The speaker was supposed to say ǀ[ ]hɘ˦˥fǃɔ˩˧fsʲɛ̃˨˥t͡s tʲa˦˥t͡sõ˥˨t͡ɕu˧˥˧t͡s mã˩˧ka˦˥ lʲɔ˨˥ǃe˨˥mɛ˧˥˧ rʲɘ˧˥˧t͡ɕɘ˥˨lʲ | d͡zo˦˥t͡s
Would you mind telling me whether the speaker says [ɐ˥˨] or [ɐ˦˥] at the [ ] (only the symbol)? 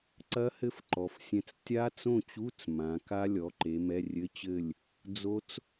ɐ˦˥